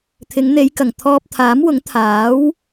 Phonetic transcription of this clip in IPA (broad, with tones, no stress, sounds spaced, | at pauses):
t̪ʰ ɪ˨˧ ŋ n̪ e˨˧ j k ɐ˨˩ ŋ t̪ʰ ɔː˧ p̚ t̪ʰ aː˨˥ m w ʊ˨˥ ŋ t̪ʰ aː˨˥ w